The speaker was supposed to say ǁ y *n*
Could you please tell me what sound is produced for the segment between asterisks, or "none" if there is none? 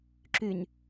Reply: n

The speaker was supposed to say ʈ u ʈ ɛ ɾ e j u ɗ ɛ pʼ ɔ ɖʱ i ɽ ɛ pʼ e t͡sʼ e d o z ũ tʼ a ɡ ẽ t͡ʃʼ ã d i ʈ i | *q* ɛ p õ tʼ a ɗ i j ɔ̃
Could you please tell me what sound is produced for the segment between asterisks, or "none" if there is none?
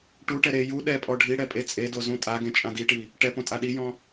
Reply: ʈ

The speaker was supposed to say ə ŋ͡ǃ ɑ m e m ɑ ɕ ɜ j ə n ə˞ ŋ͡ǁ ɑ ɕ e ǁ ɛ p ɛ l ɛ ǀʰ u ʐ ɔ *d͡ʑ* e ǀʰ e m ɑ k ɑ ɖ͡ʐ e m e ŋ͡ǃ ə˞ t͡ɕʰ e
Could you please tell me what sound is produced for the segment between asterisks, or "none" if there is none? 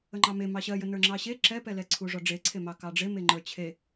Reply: ɖ͡ʐ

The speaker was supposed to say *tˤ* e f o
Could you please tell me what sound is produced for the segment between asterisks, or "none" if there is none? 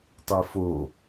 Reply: tˤ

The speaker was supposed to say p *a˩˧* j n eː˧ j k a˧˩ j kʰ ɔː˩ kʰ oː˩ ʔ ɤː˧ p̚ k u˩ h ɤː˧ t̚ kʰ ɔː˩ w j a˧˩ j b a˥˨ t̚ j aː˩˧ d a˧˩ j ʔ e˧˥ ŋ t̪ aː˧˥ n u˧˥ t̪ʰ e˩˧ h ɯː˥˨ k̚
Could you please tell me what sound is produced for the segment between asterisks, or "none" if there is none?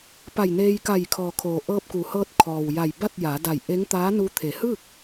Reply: a˧˩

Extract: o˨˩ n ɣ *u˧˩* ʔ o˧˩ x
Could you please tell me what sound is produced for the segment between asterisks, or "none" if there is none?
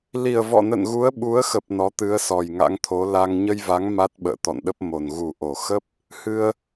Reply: u˨˩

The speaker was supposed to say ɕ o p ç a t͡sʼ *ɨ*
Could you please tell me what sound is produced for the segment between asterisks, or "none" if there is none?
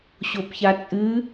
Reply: ɨ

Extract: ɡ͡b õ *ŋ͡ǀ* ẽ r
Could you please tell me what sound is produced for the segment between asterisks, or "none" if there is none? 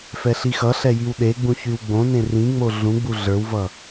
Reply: n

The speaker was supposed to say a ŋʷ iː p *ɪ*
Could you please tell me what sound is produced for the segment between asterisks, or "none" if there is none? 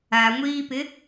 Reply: ɪ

